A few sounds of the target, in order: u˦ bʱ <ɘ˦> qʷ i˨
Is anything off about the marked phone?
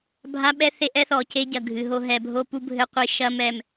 no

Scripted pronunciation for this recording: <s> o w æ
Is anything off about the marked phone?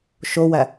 yes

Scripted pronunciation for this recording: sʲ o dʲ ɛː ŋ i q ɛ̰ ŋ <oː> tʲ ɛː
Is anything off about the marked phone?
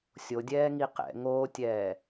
no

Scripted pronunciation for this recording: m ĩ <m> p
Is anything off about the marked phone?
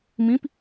yes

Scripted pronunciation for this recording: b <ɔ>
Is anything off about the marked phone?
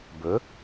yes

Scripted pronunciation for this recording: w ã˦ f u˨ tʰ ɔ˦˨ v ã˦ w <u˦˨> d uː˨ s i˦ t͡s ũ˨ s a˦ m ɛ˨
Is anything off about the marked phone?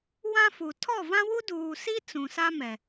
yes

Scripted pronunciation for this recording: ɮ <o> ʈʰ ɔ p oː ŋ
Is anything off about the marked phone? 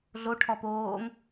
no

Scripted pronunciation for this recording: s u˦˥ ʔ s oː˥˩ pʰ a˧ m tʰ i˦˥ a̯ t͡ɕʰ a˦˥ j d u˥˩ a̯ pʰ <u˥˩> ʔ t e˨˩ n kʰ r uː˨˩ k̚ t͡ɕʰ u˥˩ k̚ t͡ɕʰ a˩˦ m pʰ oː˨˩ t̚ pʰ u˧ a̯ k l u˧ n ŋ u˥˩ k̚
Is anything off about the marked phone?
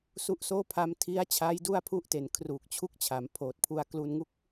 no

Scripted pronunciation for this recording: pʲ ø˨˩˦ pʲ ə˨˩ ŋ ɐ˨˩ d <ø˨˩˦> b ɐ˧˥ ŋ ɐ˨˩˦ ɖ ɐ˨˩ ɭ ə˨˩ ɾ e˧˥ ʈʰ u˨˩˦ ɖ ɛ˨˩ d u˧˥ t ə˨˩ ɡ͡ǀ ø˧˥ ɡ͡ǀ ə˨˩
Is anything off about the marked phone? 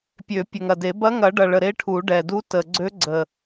yes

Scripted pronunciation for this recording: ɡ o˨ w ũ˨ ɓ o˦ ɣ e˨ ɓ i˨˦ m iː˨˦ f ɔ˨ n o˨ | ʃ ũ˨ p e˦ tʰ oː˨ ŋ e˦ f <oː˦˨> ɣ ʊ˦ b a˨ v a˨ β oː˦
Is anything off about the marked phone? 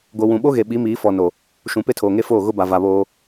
no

